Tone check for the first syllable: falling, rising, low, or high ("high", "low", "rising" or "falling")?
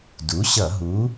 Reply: rising